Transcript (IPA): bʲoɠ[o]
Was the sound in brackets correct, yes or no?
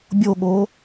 yes